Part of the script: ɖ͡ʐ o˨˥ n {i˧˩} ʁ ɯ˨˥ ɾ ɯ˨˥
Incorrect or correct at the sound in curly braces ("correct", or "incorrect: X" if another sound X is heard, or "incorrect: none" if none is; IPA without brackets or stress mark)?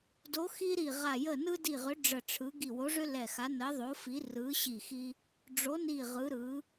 correct